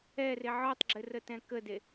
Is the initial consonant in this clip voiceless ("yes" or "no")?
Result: no